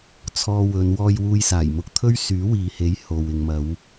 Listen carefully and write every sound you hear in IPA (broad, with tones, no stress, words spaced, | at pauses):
t͡sʰɔː˧wɵ˨˧n wɔː˧jwuː˧jsaː˨˩j mʊ˧k̚t̪ʰɵ˥ɥ syː˨˥wiː˨he˨˥j ho˨w ɪ˨ŋmɐ˨˧w